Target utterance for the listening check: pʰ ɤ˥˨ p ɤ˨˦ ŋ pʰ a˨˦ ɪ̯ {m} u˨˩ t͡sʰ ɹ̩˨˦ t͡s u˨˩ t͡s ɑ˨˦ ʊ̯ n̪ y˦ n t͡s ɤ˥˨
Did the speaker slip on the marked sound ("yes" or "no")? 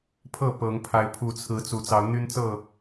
yes